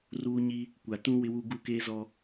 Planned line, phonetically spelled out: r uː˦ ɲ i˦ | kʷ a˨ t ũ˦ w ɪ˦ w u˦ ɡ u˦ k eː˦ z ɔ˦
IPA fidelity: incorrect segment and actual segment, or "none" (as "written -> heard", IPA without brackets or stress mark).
none